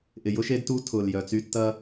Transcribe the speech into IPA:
ʔ ɪ˨ j ʊ˦ ʃ e˦ d t u˦ tʰ ʊː˨ l j œ˨ t͡s y˦ tː ɐ˦

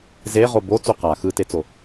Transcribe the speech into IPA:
z e ʁ o b o t͡s u q a x ɯ t e t͡s o

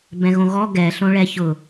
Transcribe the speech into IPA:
b ɛ̃ ɣ õ ɣ ɔ ɡ ɛ ɬ õ ɭ ɛ ç ʊ

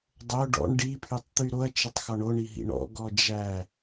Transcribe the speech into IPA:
dˤ o ɖ ɔ̰ ɳ ɖ i pʰ y tˤ t̪ y ɾ o ɐ̯ t͡ʃ ɪ tˤ x ɔ ɳ o ɳ i ɦ ḭ ɳ ɔ̰ ɡ ɔ d͡ʒ æ

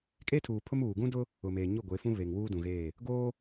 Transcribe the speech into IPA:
kʼ e˦ tʰ uː˨ pʰ ʊ˦ m uː˨ ɡ ũ˦ d ʊ˦ | ʊ˨ m eː˨ ɲ ʊ˦˨ ɡʷ e˨˦ f ũ˦ β e˨ ŋ w uː˦ d ũ˨ ɣ eː˦˨ | ɡ oː˦

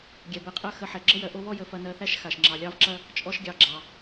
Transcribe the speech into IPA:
ɡʲ ɛ˩ b ɛ˨ qʼ ɜ˦ x ə˨ ħ ɛ˩ ɡ͡ǁ ə˥ j ɜ˨ ʔ o˦ β ɔ˥ j ə˨ f ɐ˨ n ɜ˨ θ æ˦ ʃ x a˩ ʃ ŋ͡ǁ ɑ˩ lʲ ɑ˦ v ǁ ɐ˥ | t͡ʃʼ ɔ˦ ʃ ɡʲ ɑ˨ ɡ͡ǁ ɑ˩

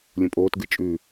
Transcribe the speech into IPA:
lʲ ũ pʼ oː t ɡ ɨ t͡ʃʼ ʉ

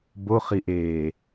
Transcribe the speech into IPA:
b o χ i ʔ eː

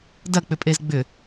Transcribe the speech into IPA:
d ɐ k͡p ʏ pʼ e z ɡ͡b ʏ

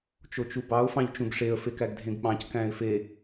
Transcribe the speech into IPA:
t͡ʃ o t͡ʃ u b ɑ ʊ̯ f ɑ̃ ʎ t͡ʃ ũ ɡ ʂ e ə̯ f e k æ ɡ dʱ ẽ ɡ ɓ ɑ̃ c k æ̃ ɪ̯ f e

